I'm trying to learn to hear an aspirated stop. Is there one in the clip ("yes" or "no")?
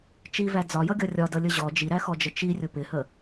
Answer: no